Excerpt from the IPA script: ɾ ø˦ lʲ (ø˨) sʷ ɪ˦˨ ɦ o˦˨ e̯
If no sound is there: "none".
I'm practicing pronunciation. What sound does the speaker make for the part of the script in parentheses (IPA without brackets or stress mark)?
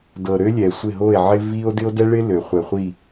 ɛ˨